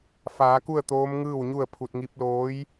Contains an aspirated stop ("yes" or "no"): yes